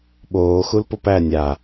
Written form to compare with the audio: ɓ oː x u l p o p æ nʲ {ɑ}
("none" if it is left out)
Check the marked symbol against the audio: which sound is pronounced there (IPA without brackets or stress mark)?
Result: a